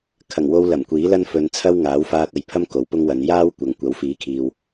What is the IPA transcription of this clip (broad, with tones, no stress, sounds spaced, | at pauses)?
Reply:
kʰ ɐ˨˩ ŋ w o˧ w l ɐ˨˩ m kʷ iː˨˥ l ɐ˥ n f ɵ˨ n t͡sʰ ɐ˥ w ŋ aː˨˥ w f aː˧ t̚ ɐ˨ j pʰ ɐ˥ m k o˨˥ w p ʊ˥ ŋ w ɐ˨˧ n j aː˥ w kʷ ɐ˨ ŋ kʷ ɐ˨˥ w f iː˨˥ kʰ iː˨ w